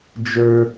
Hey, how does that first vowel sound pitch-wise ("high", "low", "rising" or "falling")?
high